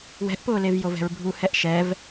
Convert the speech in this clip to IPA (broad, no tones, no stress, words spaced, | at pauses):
wɛ̤ʔpʊːlevjov ɛ̤ɹbʱuhɛʔ ʃɛv